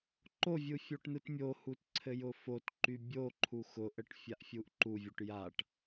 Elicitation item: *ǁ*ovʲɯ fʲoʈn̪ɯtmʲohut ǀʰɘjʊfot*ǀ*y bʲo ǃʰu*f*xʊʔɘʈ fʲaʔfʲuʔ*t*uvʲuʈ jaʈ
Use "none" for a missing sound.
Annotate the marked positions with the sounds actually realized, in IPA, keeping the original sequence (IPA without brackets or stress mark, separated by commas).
ǃ, ǃ, none, ǃ